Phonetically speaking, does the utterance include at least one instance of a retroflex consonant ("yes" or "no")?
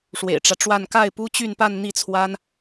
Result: yes